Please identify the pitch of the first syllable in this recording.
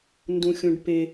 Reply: low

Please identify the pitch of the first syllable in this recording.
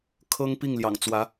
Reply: high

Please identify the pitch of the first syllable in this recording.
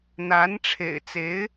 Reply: rising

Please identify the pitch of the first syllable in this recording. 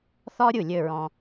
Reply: high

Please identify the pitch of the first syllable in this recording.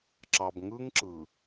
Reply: low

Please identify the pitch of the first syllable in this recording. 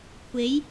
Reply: rising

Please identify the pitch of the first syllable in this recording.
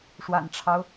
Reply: low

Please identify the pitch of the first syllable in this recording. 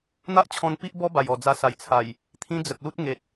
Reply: high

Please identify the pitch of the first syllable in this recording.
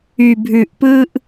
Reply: low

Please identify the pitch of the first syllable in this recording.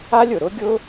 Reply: high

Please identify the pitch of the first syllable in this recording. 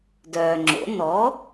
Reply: low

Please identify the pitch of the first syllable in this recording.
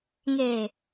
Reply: low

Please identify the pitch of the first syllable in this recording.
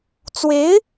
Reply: rising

